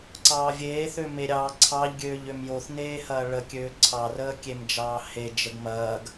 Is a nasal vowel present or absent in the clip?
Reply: absent